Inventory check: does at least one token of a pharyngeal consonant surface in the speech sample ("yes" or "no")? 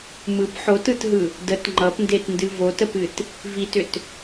yes